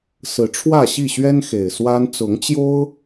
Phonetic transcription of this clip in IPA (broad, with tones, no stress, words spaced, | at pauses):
sɹ̩˨˦ʈ͡ʂʰwä˥˨ɕi˥˨ɕɥɛ˦n xe˨˩ɪ̯swa˦n t͡sʊ˨˦ŋt͡ɕjo˦ʊ̯